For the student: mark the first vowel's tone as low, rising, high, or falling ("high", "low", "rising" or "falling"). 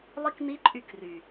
high